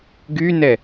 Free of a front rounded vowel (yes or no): no